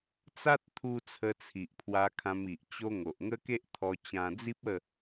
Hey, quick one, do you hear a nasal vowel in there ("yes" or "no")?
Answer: yes